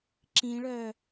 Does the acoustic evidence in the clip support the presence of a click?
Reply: yes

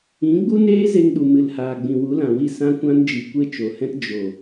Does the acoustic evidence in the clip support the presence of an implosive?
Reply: yes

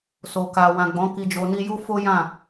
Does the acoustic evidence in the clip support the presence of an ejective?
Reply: no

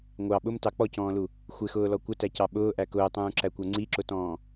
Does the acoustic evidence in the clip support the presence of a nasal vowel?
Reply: yes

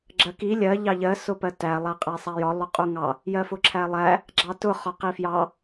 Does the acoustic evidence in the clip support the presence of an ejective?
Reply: yes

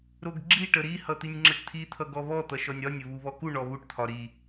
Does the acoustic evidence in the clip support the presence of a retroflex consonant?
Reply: yes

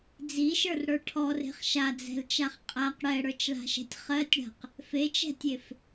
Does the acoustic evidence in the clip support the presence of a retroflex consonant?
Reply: yes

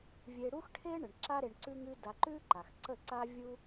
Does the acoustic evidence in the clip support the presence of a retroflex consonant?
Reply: yes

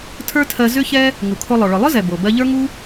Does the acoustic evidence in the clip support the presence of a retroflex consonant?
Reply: yes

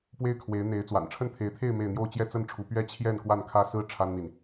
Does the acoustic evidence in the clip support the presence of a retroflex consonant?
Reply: yes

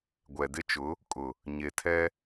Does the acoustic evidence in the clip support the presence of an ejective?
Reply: yes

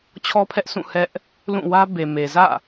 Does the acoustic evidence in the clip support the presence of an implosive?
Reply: no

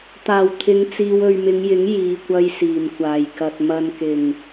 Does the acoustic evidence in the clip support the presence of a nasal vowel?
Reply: no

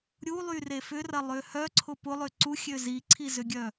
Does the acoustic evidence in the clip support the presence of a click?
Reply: yes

